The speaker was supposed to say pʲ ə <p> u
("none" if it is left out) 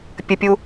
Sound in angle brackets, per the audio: pʲ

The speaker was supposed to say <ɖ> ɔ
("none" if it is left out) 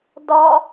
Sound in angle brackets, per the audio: d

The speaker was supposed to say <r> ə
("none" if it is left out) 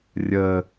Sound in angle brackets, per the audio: rʲ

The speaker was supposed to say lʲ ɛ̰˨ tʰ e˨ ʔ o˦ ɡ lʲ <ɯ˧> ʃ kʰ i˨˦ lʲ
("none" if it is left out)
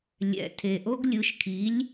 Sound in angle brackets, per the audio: ɯ˨˦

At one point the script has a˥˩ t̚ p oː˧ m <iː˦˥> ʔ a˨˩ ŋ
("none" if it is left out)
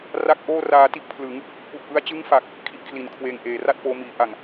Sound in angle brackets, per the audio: iː˩˦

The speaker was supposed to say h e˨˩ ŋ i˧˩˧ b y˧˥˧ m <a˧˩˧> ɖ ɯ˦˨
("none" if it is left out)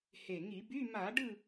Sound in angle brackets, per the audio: a˧˩˧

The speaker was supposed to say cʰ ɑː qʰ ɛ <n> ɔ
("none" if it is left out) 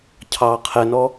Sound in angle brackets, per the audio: n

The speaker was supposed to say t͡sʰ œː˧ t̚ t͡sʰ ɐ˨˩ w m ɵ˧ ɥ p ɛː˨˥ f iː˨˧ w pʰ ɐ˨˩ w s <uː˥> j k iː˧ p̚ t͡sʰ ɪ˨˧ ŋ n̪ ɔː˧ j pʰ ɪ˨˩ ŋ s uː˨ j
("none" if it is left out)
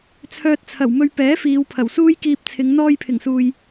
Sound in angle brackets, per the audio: uː˥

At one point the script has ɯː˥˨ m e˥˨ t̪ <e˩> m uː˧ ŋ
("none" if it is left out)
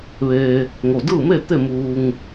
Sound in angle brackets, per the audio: e˥˨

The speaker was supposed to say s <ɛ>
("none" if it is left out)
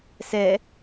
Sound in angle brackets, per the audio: ɛ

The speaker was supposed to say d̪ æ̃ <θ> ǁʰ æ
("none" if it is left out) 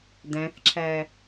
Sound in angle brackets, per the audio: θ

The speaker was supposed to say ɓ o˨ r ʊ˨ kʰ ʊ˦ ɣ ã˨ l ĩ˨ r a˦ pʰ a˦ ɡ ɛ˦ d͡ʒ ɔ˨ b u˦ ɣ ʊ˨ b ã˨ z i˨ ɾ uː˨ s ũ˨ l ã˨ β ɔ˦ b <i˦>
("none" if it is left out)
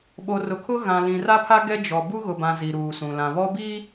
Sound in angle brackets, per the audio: iː˦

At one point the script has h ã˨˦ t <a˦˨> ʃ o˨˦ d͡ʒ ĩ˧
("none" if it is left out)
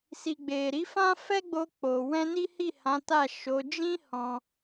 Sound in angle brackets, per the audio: a˦˨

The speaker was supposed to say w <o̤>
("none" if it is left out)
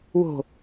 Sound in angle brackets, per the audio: o̤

